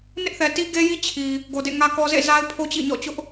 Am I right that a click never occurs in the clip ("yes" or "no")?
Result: yes